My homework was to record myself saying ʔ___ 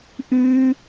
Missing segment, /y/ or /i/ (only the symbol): y